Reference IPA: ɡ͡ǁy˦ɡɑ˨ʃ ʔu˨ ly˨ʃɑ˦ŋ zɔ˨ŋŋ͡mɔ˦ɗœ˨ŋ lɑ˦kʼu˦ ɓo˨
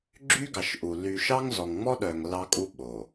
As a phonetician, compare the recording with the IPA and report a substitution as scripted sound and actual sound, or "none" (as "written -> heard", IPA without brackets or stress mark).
none